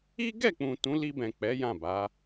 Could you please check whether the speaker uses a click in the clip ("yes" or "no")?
no